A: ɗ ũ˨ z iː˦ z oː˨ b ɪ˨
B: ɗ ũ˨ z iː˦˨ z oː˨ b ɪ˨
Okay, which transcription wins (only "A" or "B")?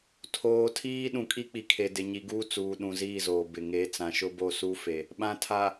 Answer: B